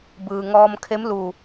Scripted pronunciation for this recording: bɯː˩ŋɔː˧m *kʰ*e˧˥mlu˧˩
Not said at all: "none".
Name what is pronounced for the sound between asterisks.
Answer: kʰ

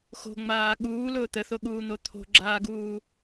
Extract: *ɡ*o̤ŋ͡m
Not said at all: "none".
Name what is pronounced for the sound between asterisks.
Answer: x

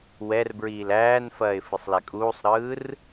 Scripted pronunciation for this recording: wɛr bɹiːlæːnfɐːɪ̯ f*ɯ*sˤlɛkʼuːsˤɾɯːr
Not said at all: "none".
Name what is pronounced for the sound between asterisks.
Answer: ɯ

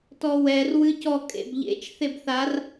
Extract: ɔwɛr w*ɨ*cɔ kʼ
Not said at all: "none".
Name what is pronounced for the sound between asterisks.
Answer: ɨ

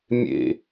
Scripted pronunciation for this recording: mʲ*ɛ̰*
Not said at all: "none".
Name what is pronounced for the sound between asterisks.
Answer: ḛ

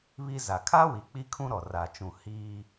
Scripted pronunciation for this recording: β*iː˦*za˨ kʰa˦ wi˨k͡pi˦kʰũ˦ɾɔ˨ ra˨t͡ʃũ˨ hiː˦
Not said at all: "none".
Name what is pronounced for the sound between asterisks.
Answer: i˦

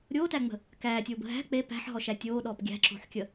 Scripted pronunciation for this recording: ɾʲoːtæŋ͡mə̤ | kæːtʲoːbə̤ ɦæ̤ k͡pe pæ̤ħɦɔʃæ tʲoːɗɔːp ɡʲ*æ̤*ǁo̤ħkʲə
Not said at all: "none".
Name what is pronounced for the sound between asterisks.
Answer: æ̤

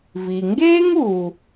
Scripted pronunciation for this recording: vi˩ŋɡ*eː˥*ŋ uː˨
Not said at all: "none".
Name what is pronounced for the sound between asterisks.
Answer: eː˥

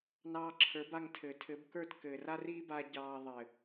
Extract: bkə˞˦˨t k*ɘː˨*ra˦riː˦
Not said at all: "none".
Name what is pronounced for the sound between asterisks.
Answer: ɘː˨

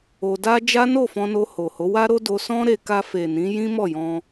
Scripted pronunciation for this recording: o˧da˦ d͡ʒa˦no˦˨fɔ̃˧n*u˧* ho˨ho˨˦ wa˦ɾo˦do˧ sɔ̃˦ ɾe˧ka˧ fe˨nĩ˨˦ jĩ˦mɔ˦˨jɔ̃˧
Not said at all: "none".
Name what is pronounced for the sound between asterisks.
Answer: o˧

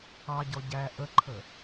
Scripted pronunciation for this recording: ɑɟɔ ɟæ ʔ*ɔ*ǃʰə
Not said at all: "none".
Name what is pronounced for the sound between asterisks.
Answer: ə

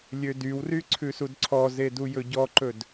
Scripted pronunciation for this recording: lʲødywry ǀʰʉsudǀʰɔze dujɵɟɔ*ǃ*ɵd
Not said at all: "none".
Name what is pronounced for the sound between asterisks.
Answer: ǃ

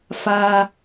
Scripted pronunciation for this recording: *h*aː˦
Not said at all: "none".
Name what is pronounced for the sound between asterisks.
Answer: f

